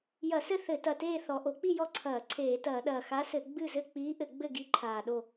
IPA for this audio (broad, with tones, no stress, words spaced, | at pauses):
jɐ˧˩˧sɘ˥˨ θɘ˧˩˧tɐ˨˩ teː˥˨ θɔ˨˩ ʔo˧˩˧k͡pi˥˨ jɔ˥˨ǀʰɐː˧˩˧ ǀʰeː˧˩˧tɐː˧˩˧ɗɐː˨˩ xa˧˥sɘ˧˩˧ ɡ͡bɨ˥˨zɘ˥˨ k͡piː˧˥ʔɘ˧˩˧ɡ͡bɘ˥˨ ɡi˧˥ǃʰaː˨˩ɗo˥˨